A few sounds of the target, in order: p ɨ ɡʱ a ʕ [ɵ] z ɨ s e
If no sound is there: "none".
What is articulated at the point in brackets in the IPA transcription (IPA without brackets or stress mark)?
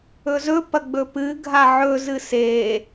ɵ